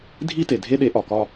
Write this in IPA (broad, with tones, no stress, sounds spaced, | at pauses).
dʱ i˥˧ t e˩ dʱ e˥˧ ɗ e˨˦ ʔ ɒ˩ k ɒ˥˧